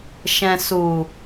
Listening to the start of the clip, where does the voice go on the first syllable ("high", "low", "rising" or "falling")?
low